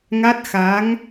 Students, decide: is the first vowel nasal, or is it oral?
oral